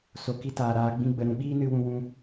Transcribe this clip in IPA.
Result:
s o˨ k i˧ t aː˨ ɾ aː˧ ɡ͡b ĩ˦ ɡ͡b ə˧ ɾ ũ˧ ɓ iː˦ n ɨ˧ w ũ˧ w ũ˧

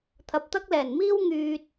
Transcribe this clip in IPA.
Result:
t̪ʰ ɐ˨ p̚ t̪ ɐ˥ k̚ l ɛː˨˩ n m iː˥ w ŋ yː˧ t̚

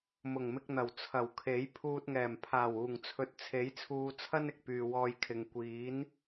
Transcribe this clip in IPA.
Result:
m ʊ˨˩ ŋ m ɪ˧ k̚ n̪ ɐ˨˩ w t͡sʰ ɐ˨˩ w kʰ e˨˥ j pʰ uː˧ t̚ ŋ ɛː˨˩ m pʰ aː˨˩ w uː˨˩ ŋ t͡sʰ ɵ˨ t̚ t͡sʰ e˨˥ j t͡sʰ uː˧ t͡sʰ ɐ˥ n ɪ˨ k̚ p yː˨ w ɔː˧ j kʰ ɪ˨ ŋ kʷ iː˨˥ n

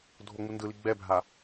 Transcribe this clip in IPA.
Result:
dʱ o ŋ͡m u n d ɯ l i ɡ͡b ɛ bʱ a

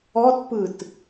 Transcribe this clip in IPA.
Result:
ɔ t p ɯ t

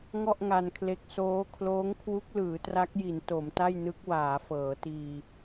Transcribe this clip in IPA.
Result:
ŋ ɔ˥˩ ʔ ŋ a˧ n kʰ l e˦˥ k̚ s oː˦˥ kʰ l oː˦˥ ŋ kʰ w u˦˥ k̚ l ɯː˩˦ t r a˦˥ k̚ j i˩˦ n t o˩˦ m t a˥˩ j n ɯ˦˥ k̚ w aː˩˦ f ɤː˩˦ t iː˧

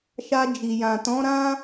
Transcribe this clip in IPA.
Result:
ʃ a˧ d͡ʒ i˨ j ã˨ t ɔ̃˨˦ ɾ ã˦

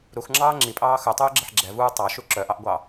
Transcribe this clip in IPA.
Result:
ɾ u x ŋ͡ǁ ɑː ŋ͡ǁ i pʼ ɑː x œ tˤ uː ɡ͡ǁ ɛ ħ ɡ͡ǁ ɛ v uː tˤ ɑ ʃ u ǁ œ ʔ ɑ ʔ ɡʷ ɑ

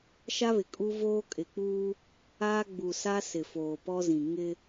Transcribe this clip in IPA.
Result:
ʃ a˦ β ɪ˨ kʼ u˦ v oː˦ kʼ ɪ˨ k͡p uː˦ | aː˦ ɡ͡b u˨ s a˦ s ɪ˨ f oː˨ p ɔ˦ z ĩ˨ ŋ ɪ˦

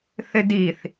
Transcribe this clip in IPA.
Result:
θ ɪ d i θ

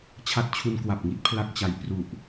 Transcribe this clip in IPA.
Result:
t͡ɕʰ a˦˥ t̚ t͡ɕʰ u˧ n k w a˨˩ p̚ ŋ i˥˩ t̚ pʰ l a˥˩ k̚ t͡ɕ a˧ j p r u˨˩ ʔ

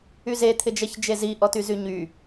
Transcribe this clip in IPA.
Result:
y z e t̪ʰ ɪ d͡ʒ ɛ ç d͡ʒ e z i ʔ ɔ t y z y ɲ y

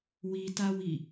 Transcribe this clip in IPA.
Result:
w i t a w i

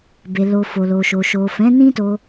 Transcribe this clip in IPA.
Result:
b e˨ l o˨ f o˨ l o˨ ʃ o˨ ʃ o˨ f ɛ̃˨˦ n ĩ˦ t o˧

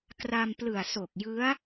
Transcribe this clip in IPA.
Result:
k r a˧ m p l ɯ˨˩ a̯ s o˨˩ k̚ j ɯ˦˥ a̯

